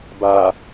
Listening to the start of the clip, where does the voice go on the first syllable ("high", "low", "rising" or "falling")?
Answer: low